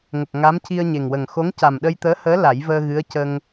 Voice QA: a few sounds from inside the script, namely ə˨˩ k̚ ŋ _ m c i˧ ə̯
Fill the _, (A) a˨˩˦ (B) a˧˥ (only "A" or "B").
B